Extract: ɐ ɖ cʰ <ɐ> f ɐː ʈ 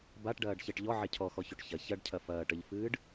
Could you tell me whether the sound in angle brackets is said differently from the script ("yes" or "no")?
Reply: no